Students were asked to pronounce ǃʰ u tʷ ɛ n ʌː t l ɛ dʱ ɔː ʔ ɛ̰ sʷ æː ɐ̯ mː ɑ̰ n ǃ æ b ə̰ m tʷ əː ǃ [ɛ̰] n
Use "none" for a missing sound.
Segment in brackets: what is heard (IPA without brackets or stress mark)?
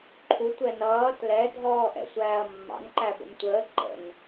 ə̰